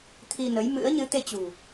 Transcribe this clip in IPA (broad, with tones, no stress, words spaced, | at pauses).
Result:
t̪ʰi˧nə˨˦jmɨ̰˧˥ə̯ ɲɨ˨˦t̪e˧t͡ɕṳ˨˩